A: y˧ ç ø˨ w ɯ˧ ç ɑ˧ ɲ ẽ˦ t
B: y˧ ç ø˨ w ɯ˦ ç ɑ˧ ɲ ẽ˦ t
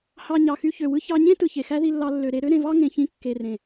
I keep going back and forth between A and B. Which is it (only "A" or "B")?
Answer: B